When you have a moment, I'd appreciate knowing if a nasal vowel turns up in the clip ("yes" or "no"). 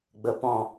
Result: yes